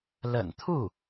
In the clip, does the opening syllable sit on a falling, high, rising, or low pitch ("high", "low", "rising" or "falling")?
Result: low